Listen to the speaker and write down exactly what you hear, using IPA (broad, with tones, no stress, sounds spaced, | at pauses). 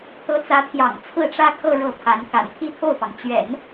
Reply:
t̪ ɤ˧˥ t͡s ä˧˥ t̪ʰ j ɑ̰˨˩ ŋ t͡sʰ ɹ̩˥˩ ʈ͡ʂ ä˥ kʰ ɤ˥˧ ɻ ɤ˥˩ pʰ a˧˥ n k a̰˨˩ n t̪ʰ i˥˧ t̪ʰ o˥˩ ʊ̯ p ɑ˩ ŋ t͡ɕ ɥ ɛ̰˨˩˦ n